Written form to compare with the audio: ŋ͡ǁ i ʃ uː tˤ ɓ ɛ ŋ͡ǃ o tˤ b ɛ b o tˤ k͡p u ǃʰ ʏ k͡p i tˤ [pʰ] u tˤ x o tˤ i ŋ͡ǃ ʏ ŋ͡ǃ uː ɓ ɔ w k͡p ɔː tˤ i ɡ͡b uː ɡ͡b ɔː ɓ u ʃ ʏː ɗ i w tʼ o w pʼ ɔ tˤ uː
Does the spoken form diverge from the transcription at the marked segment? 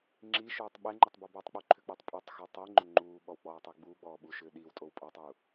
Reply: yes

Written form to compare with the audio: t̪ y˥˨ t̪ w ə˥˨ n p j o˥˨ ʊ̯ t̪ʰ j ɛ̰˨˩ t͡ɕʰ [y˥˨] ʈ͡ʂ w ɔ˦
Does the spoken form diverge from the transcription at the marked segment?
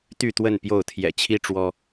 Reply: yes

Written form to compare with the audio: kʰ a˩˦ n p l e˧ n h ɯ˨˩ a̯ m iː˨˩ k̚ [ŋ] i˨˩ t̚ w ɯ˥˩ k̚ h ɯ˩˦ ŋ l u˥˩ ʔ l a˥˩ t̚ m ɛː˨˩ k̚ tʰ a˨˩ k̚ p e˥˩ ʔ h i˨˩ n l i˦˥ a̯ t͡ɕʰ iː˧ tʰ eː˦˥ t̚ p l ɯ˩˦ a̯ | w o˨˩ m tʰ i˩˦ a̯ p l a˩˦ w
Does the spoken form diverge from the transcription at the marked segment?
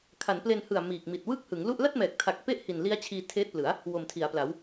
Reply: yes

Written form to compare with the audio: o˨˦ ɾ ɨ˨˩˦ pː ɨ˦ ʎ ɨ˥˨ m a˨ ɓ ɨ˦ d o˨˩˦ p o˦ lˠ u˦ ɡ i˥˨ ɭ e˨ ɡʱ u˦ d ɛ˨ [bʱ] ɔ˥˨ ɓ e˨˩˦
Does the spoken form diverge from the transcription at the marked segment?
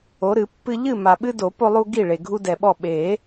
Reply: yes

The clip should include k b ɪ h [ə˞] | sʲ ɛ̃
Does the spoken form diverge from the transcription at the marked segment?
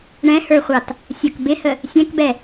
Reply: yes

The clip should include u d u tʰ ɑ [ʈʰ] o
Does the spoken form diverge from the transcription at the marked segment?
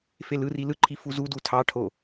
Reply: no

